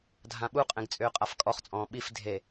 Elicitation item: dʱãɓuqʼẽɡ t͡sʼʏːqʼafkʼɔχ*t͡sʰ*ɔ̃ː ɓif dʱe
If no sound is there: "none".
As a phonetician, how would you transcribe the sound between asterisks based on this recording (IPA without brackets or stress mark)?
t͡sʼ